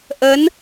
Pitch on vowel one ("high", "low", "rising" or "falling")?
rising